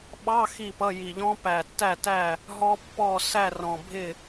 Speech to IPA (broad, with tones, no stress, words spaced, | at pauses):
ɓɑ˧˥˧ xi˥˨pʌ˧˥˧ji˨˩ʎɔ̃˦˥ pæ˨˩tːæ˥˨tæ˥˨ | ɦɔ˦˥pːɔ˥˨ sæ˥˨rɔ̃˨˩ bʱɪ˥˨